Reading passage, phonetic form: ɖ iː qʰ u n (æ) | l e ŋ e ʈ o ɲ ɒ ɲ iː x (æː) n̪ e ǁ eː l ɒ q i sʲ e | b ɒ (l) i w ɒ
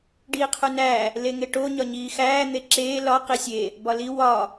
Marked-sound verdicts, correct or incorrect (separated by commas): correct, correct, correct